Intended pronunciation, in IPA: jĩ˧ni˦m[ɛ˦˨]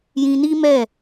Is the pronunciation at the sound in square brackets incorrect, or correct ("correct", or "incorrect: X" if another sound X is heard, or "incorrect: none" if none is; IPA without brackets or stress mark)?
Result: correct